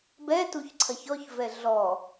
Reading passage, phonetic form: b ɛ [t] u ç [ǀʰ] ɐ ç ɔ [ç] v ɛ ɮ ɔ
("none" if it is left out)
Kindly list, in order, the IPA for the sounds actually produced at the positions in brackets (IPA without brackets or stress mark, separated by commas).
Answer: t, ǀʰ, ç